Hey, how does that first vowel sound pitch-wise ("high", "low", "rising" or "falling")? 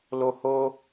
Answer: high